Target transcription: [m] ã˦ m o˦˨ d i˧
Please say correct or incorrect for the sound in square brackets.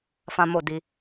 incorrect